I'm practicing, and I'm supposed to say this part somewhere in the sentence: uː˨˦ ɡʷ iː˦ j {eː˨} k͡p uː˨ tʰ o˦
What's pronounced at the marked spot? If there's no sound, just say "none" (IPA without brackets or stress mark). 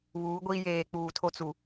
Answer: eː˨